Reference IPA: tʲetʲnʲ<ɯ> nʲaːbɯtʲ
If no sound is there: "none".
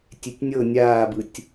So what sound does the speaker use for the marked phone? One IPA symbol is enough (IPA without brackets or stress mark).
ɤ